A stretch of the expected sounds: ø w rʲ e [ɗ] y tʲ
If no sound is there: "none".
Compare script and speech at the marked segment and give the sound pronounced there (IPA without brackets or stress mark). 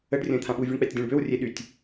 ɗ